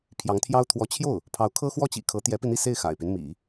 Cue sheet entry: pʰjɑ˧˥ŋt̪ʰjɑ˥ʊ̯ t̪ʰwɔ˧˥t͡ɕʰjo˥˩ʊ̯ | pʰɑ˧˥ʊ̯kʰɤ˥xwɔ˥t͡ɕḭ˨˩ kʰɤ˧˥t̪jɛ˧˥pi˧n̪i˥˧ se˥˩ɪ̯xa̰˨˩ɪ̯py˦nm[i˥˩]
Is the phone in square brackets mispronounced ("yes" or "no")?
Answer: yes